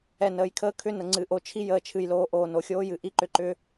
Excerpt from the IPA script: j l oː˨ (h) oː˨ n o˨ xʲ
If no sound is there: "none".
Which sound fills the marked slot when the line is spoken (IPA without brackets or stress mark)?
ʔ